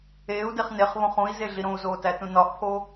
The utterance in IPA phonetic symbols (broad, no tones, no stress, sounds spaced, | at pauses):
eː u̯ d e χ n e χ β õ χ ũ i̯ z e ɮ i ɾ õ u̯ z oː t æ t ũ n ɒ ʔ pʰ o